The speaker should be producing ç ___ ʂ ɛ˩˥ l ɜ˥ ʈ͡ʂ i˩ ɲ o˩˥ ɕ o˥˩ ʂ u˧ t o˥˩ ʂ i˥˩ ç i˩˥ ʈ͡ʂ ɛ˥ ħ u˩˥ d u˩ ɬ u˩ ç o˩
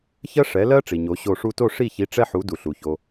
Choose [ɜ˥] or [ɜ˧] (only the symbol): ɜ˥